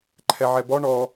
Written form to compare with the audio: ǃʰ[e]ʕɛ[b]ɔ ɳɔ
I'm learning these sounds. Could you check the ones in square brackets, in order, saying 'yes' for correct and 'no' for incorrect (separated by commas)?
no, yes